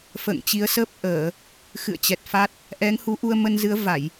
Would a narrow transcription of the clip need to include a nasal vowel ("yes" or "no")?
no